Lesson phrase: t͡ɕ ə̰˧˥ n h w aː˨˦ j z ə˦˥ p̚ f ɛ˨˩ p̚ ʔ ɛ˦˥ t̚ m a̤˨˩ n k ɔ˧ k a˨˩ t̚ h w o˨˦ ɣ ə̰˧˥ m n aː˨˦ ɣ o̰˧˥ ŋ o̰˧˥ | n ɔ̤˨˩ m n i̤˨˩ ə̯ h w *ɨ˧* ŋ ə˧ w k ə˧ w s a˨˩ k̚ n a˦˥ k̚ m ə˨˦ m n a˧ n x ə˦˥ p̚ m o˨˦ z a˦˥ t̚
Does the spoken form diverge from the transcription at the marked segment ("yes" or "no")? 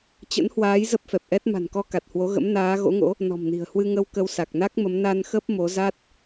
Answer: no